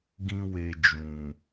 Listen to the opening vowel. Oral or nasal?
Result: nasal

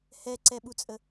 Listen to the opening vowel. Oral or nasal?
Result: oral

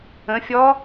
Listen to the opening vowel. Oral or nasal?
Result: nasal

